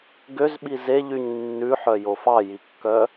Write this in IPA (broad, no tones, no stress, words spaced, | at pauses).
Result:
ɡøz ɓizeʎyɲ nːʉħœ jofɑjikːœ